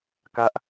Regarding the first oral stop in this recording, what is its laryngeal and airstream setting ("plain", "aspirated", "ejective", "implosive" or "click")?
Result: plain